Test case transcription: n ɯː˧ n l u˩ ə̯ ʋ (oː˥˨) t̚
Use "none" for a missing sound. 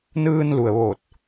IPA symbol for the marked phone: oː˧˩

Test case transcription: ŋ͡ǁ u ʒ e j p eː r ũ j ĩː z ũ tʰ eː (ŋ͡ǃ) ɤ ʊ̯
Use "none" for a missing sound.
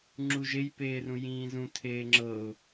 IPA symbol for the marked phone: ŋ͡ǁ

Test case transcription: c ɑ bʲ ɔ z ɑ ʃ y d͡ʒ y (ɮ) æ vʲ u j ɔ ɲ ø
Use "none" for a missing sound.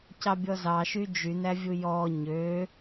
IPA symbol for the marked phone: n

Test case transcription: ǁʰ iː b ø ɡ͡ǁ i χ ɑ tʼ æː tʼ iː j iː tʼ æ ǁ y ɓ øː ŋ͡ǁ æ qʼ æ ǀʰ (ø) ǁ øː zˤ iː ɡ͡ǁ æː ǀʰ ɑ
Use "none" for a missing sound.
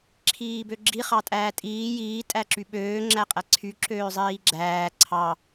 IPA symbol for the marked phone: y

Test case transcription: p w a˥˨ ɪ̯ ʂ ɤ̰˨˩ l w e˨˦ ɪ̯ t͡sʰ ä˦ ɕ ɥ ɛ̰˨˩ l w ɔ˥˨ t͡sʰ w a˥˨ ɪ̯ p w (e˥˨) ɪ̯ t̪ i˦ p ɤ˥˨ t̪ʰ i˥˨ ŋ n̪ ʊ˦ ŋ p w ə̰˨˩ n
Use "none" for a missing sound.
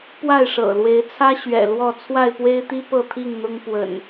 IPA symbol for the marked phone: e˦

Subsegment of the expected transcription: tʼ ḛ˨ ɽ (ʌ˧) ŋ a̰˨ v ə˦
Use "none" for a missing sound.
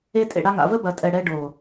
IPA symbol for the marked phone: a˧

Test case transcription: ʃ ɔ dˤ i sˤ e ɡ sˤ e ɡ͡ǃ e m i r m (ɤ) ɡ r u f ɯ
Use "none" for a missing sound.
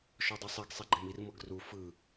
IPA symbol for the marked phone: ɤ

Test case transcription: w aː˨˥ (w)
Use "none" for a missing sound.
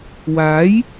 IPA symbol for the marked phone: j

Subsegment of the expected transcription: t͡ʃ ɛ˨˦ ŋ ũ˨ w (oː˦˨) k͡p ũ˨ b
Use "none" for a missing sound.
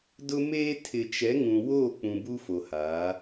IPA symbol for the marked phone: oː˦˨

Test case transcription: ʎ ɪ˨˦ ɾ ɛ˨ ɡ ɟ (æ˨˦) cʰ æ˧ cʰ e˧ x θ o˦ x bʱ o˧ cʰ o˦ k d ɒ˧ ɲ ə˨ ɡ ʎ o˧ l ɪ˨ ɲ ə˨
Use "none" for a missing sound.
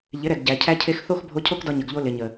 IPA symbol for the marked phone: æ˨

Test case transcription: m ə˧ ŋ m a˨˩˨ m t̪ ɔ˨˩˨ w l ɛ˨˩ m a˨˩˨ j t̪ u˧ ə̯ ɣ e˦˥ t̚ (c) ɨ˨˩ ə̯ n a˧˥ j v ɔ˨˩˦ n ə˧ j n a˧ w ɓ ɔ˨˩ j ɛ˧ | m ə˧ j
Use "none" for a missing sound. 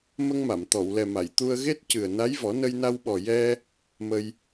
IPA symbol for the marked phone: c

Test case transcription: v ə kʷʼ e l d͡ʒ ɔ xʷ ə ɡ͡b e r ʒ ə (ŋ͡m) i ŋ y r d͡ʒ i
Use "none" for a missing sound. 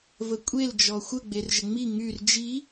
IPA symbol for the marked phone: ŋ͡m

